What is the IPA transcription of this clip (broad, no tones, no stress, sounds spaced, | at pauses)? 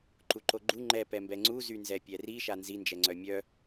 ǃ u ǃ o ɡ͡ǃ u ŋ͡ǃ ɛ p ɛ m b ɛ ŋ͡ǀ u z y n z ɛ pʲ ɛ r i ʃ a n z i n d͡ʒ ɛ ŋ͡ǀ œ mʲ œ